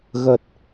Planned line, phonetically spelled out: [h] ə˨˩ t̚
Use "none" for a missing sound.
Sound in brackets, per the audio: ɣ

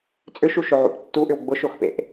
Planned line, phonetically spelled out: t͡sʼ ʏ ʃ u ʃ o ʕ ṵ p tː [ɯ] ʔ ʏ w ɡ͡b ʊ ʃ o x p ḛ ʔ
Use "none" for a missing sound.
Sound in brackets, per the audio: u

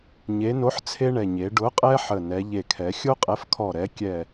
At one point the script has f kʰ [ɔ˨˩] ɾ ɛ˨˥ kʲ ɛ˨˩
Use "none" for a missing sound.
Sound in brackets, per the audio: ɔ˨˩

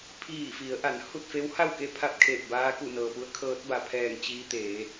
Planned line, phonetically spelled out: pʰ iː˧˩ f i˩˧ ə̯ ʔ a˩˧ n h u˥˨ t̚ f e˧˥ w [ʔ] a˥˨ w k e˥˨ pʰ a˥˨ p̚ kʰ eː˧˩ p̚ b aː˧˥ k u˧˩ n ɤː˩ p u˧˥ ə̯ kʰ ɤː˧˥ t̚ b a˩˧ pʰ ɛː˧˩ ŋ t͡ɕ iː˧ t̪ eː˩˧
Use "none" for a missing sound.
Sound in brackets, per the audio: h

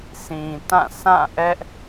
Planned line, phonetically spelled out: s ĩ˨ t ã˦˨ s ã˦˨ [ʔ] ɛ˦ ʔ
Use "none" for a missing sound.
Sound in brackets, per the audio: ʔ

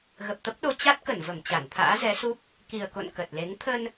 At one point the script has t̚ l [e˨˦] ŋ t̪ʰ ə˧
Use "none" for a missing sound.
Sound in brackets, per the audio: e˨˦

